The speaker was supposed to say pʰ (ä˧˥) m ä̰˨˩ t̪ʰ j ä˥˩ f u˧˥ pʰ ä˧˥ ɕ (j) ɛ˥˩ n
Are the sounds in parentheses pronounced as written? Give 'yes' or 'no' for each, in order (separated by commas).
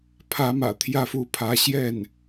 yes, yes